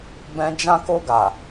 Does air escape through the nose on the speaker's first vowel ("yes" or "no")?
yes